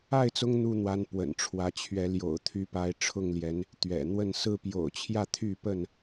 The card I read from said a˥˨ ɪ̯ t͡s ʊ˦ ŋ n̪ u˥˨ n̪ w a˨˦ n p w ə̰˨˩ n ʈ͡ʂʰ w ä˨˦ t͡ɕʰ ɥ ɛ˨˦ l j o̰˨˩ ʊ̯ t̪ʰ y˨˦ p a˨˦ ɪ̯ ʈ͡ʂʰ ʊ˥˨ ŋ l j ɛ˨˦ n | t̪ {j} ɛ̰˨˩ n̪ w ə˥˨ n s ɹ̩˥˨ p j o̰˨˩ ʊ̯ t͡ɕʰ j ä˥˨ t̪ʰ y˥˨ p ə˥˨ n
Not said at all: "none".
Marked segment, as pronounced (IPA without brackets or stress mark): ɥ